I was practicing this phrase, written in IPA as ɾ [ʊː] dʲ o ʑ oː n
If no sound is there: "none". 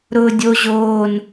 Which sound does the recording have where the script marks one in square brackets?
ʊː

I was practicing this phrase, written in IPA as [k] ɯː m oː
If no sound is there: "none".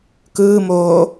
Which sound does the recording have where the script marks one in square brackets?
k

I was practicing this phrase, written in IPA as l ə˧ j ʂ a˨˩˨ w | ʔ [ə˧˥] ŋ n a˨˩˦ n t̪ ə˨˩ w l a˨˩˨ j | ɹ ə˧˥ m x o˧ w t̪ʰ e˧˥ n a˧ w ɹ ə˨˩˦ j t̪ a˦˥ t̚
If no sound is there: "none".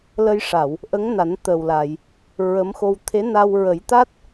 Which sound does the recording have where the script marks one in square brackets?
ə˧˥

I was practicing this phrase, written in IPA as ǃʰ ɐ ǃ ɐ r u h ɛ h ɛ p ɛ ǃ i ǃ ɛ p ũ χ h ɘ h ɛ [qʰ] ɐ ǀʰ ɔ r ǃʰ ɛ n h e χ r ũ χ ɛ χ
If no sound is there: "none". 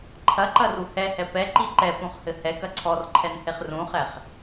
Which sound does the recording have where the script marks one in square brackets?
k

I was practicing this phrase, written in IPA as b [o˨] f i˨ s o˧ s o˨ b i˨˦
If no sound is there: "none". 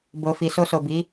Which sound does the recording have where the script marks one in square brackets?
o˨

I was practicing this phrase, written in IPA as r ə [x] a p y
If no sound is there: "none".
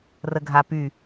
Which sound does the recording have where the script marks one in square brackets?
ɡʱ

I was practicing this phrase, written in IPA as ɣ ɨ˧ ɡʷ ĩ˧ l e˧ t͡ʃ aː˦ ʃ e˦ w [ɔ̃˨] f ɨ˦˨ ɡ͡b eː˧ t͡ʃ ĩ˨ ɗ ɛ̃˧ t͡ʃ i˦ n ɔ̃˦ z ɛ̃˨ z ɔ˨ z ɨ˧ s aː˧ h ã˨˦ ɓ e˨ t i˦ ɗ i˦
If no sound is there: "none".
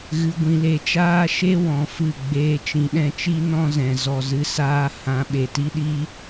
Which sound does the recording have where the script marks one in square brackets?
ɔ̃˧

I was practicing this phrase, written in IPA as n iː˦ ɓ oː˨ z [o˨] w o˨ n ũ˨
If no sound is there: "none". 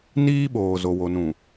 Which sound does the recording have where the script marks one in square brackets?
o˨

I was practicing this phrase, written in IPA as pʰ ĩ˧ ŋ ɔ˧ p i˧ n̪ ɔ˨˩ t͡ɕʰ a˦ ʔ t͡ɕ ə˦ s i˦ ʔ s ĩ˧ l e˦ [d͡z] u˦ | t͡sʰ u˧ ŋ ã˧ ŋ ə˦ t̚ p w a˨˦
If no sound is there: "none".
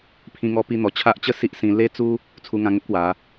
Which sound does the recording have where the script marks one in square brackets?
t͡s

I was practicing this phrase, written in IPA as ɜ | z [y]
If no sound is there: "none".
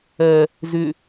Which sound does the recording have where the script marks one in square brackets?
ʏ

